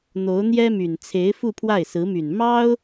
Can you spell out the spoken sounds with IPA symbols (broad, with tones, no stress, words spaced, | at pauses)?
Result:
n̪o˧˥ʊ̯n̪jɛ˥my˨˩n t͡sʰe˧˥ɪ̯ fu˥˧pʰwa˥˩ɪ̯sɹ̩˧˥my˨˩n mɑ˥ʊ̯